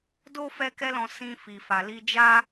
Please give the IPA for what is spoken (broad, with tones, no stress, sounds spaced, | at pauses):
d o˦ f ɛ˦ k ɛ˦ l ɔ̃˧ s ĩ˦ f i˧ f a˧ l i˦ d͡ʒ a˦